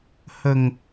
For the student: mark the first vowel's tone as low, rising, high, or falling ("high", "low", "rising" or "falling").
low